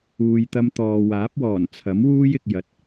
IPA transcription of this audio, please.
uː˨ j t̪ ɐ˧ m t̪ ɔː˨ w aː˨˥ p̚ w ɔː˨˩ n t͡sʰ ɐ˨˥ m w uː˥ j ɪ˨ k̚ j ɐ˨ t̚

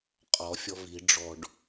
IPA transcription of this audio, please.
qʼ ɔ̤ fʲ ɔ̤ v i̤ ɖ͡ʐ ɔ̤ ɖ

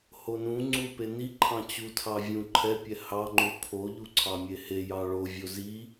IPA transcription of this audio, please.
h o n ũ ŋ͡ǀ u p e n i ǃʰ ɑ̃ t͡ɕ u tʰ ɑ vʲ ũ ǃʰ ɛ pʲ ɛ h ɑ ŋ͡ǃ u kʰ o ʎ u ǀʰ ɑ mʲ e h e j ɑ ɭ o vʲ o z i

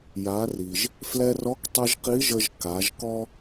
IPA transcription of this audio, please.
j a˩˧ r i˩ ʒ | f l ɛ˧ r ɔ˧˥ k tˤ ɨ˧ ʒ q i˧˥ ʒ ə˧ ʒ k a˩˧ ʒ k ɔ˥

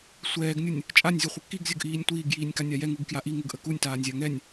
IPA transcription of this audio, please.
sʷ ɛː ɡ nʲ u nʲ | t͡ʃʼ a nʲ zʲ ʊ χʷ ə k i ɡ zʲ ʊ ɡ ʔ iː nʲ tʷ iː ɡ j iː nʲ k a nʲ a j ɛ ŋ u ɡ k j a ʔ i ŋ ʊ ɡ ʔ ə k u nʲ t aː nʲ zʲ a ŋ ɛ nʲ

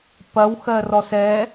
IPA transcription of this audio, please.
p ɐ w x ɜ r ɔ s ɛ

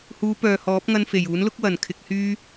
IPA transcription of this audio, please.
h uː˨˧ p œː˨ h ɔː˨˥ p̚ ŋ ɐ˧ n f e˨˩ j uː˨˥ n l ʊ˥ k̚ w ɐ˨˩ n kʰ ɪ˧ k̚ h yː˥

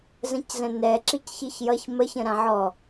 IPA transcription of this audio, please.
z ə̃ c z ə̃ n ɛ ǁ i c ç i ç j ʌ ç m ə ç ə̃ ɾ ã ʕ ɔ

